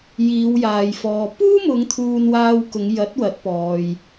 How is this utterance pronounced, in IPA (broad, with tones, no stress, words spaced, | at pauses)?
jiː˨˧wjaː˨jfɔː˨ puː˥mʊ˨˧ŋ t̪ʰuː˧nwaː˧w kʊ˨˧ŋjɐ˨˥t̚wɐ˨˥t̚ pɔː˨j